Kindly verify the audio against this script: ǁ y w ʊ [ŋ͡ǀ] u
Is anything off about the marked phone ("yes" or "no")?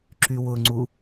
no